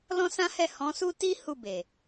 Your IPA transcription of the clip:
l ɔ̃˦ s ã˦ h ɛ˦˨ h ɔ̃˨˦ s u˦ t i˦ h u˦˨ b e˨

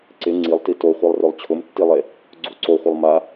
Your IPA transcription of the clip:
ǀ ɪ ŋ͡ǀ i lˠ t i t o χʷ i lˠ r ʊ lˠ t͡ɕʰ ʊ m tː i lˠ e | ɡ͡ǀ u ǀ o χʷ ə lˠ m a

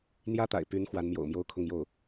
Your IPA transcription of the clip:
n̪ j ä˥ t̪ a̰˨˩ ɪ̯ p y˧˥ n x w a˧˥ n m j o̰˨˩ ʊ̯ m j o˥ ʊ̯ kʰ ʊ˥˧ ŋ j o˥˩ ʊ̯

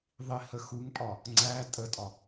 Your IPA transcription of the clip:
ðˤ i h ə x u ŋ pʼ ɒ | ŋ͡ǀ æ tʼ ə tʼ ɒ

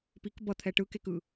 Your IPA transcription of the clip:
p i k b ʌ t̪ʰ ɛ ʈ ɯ k e k ɯ

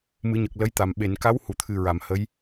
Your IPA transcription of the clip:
m ɨ˨˩˦ ɲ ə˨˩ k̚ l ə˧˥ j t̪ a˨˩ m ɓ e˨˩˨ n k a˧˥ w h u˨˩˨ t̪ʰ ɨ˨˩ ɹ a˨˩˨ m h ə˧˥ j

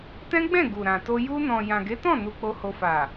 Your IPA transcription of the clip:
t ɛ̃˦ ɡ͡b ɛ̃˦˨ ɡ u˨ ɾ ã˨ t o˧ j u˧ n ɔ̃˨ j ã˨ ɡ e˨˦ t ɔ̃˦˨ n u˧ k͡p o˧ h o˧ f a˨

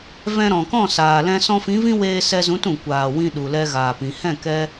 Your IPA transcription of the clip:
v ɛ̃˧ ɾ ɔ̃˨ k ɔ̃˦˨ s aː˨ l ɛ̃˧ s ɔ̃˧ f ĩ˨˦ v ĩ˦ w eː˧ s ɛ˧ z ũ˨˦ t ũ˨ kʷ aː˨ w ĩ˧ ɗ u˨ l ɛ˧ ɣ aː˨ p ĩ˨ h ɛ̃˦˨ k ɛ˧

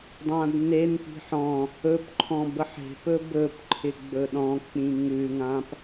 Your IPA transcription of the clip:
dˤ ã d n e n p i̤ ħ ɔ̃ | ɵ p ǃʰ ɔ̃ b ə ħ e̤ p ɵ b ɵ p ǃʰ ɪ ɡ͡b ɵ ɗ ɔ̃ k͡p ĩ ŋ ʉ ŋ ã p

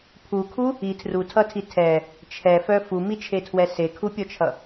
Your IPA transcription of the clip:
pʰ u kʰ u | i tʰ r u tʰ ʌ tʰ i tʰ ɛ | t͡ʃʰ ɛ f œ f u m i t͡ʃʰ e tʰ w ɛ s e kʰ u pʲ ɔ t͡ʃʰ ʌ

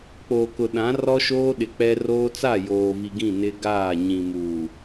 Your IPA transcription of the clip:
k͡p oː˨ k ʊ˨ ɗ ã˨˦ r ɔ˦ ʃ oː˦ ɗ ɪ˨ k͡p ɛ˦ r oː˦ t͡s a˦˨ j oː˨ v i˨ ɡ ĩ˦˨ n ɪ˦ ɡ aː˦˨ ɲ ĩ˨ m uː˨

